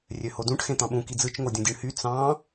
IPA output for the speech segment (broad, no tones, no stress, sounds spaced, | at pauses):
rʲ ø h o d ũ ʈ x ẽ t̪ ɑ̃ ɓ ũ k i d͡z ɯ t͡ʃ ŋ o dʲ ũ dʲ ɯ ɳ h y t͡s ɑ̃